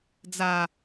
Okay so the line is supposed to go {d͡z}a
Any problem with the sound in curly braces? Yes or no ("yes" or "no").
no